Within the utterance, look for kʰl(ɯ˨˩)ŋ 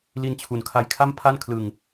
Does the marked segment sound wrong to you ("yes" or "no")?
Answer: yes